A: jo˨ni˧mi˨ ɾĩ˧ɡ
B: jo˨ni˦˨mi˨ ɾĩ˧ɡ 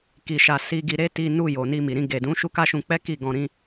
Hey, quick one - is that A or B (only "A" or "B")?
A